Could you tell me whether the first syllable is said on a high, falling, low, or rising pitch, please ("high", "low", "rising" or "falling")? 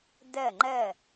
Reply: falling